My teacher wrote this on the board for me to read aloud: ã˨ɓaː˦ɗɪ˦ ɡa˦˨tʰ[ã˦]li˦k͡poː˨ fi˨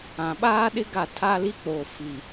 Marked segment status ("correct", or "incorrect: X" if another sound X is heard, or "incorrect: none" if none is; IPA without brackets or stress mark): incorrect: a˦